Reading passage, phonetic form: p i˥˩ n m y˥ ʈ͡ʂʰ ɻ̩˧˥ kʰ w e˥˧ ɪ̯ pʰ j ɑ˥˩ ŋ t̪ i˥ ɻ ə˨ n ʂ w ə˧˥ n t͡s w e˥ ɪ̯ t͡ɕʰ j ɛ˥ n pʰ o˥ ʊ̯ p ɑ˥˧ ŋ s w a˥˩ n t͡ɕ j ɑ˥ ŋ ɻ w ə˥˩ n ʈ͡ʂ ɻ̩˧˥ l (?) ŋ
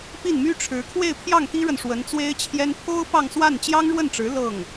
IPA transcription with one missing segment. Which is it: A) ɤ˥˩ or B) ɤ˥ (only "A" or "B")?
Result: A